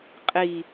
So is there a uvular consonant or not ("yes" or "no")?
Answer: yes